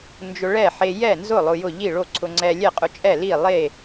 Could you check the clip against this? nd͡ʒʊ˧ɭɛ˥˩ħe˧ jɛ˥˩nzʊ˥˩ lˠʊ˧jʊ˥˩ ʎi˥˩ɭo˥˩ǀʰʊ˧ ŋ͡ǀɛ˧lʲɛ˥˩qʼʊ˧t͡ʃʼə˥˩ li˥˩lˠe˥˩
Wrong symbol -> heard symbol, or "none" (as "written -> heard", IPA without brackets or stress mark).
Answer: ə˥˩ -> ɛ˥˩